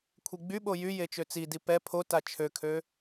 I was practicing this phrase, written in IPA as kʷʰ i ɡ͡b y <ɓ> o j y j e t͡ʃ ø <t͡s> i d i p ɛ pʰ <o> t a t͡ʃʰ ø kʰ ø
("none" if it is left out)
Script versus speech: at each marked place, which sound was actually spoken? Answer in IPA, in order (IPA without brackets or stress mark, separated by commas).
ɓ, t͡s, o